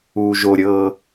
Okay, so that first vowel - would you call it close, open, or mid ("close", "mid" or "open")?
close